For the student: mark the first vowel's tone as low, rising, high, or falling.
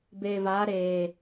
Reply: low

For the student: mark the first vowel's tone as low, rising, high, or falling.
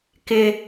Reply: low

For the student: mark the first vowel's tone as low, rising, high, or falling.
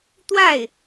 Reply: falling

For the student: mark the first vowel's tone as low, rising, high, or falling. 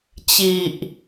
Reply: low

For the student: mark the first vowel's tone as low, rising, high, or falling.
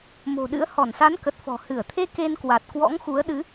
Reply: low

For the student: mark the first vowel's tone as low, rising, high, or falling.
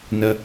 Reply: low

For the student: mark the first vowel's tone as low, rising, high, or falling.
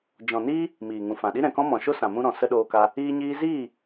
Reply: low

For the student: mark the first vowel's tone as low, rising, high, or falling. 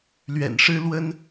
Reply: low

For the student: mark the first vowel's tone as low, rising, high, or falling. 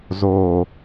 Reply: low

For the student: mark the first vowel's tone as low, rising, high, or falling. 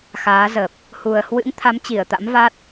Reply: rising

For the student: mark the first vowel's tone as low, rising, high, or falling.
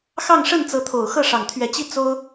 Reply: falling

